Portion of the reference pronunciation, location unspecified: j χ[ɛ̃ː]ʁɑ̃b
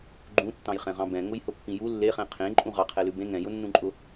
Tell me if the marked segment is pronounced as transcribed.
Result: no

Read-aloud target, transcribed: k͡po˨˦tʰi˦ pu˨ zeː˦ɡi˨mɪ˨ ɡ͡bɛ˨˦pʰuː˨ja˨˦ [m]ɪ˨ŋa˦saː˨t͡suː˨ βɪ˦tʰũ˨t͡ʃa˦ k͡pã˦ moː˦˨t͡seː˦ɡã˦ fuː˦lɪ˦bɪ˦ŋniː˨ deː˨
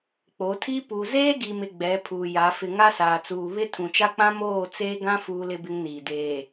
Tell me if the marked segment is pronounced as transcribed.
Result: no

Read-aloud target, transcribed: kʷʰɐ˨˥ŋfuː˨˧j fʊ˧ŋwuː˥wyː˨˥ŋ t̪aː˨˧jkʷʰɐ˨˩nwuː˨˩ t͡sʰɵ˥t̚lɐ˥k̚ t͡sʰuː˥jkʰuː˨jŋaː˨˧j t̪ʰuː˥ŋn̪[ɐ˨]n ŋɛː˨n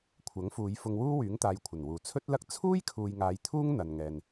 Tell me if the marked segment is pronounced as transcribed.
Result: yes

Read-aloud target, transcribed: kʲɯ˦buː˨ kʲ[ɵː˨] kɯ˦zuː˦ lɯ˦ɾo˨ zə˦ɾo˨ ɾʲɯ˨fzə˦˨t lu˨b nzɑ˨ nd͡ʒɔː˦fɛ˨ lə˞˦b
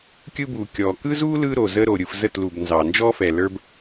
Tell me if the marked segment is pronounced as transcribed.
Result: no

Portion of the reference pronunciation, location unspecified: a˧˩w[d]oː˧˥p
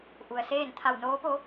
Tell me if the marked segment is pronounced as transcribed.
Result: no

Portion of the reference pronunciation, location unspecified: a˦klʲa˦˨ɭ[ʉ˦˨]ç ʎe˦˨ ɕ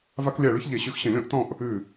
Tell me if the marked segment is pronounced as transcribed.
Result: no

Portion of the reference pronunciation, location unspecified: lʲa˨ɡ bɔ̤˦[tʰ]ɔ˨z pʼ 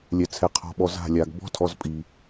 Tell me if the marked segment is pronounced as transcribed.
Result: yes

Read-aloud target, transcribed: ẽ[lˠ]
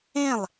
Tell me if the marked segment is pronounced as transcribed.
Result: yes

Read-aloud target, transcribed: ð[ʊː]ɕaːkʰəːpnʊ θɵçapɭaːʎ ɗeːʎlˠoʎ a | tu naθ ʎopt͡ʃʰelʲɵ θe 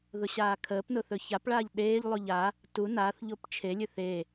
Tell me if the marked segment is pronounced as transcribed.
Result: no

